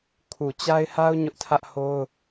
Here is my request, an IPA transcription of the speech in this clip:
kʰ u˨ t͡ɕ a˦ ɪ̯ h a˦ ʊ̯ ɲ ʊ˦ ʔ tʰ ä˦ ʔ h o˦ ʊ̯

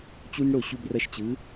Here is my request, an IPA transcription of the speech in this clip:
t͡ɕ u˦ n ɽ o˥˩ ɕ u˦ b r ʌ˦ ʃ t͡ɕ ɯ˩˥

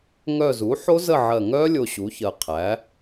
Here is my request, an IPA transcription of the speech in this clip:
ŋ œ˦˨ z u˩˥ ħ o˦˥ z ə˦˨ ʕ ɜ˨˩ ŋ œ˦˥ lʲ o˦˨ ɕ u˩˥ ç ɜ˨˩ qʰ æ˩˥

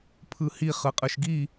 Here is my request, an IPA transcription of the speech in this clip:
pʰ ɯ h i χ ɯ qʼ ɯ ʃ ɡ i

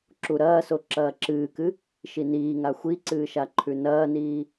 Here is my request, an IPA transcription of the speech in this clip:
ǁ u ɾ ɐː s o ǁ ɐː ǁ ɨː k ɨ | ʃ i n iː ŋ a xʷ i ǀ ɨː ʃ a ǃʰ ʉ n ɐː n iː

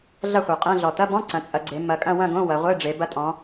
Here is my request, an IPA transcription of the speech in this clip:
ɮ ɐ˥˧ χʷ ɛ˨˩ qʼ ɛ̃˧˥˧ ɮ ɔ˨˩ t ɐ˧˥˧ b ɔ̃˧˥˧ ǀ ɐ̃˩˧ t͡sʼ ɐ˩˧ ɡ͡ǀ e˩˧ m ɐ˩˧ kʼ ɐ̃˥˧ w ɐ̃˥˧ ɡ õ˧˥˧ w ɐ˩˧ ʁʷ e˧˥˧ ɖ͡ʐ e˩˧ b ɐ˧ tʼ ɔ̃˩˧

